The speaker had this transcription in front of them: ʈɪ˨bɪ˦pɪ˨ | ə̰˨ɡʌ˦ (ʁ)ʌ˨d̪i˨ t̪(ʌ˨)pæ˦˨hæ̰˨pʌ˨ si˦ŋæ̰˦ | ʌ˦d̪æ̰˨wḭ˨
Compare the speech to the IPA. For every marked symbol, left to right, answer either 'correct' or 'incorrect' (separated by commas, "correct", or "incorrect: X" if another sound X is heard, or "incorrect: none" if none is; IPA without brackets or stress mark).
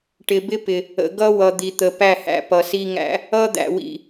incorrect: w, incorrect: ə˨